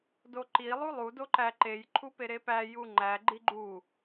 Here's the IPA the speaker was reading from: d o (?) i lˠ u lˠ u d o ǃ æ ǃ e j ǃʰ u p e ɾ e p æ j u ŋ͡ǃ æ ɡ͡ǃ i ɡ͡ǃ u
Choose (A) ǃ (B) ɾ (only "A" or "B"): A